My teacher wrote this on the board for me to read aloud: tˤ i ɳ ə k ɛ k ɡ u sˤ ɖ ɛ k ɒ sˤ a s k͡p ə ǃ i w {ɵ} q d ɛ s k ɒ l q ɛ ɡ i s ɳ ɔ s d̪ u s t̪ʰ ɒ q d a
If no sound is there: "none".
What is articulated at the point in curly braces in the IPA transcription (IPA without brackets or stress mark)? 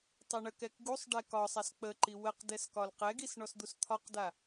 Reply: ə